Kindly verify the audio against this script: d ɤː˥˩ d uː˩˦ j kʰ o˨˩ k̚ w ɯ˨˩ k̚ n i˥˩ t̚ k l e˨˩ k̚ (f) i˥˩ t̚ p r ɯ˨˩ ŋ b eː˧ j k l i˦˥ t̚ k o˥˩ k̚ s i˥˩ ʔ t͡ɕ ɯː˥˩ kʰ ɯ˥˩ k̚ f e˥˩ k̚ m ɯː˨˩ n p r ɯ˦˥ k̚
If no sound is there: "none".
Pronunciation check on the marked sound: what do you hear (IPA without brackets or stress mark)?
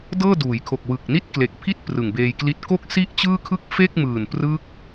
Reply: pʰ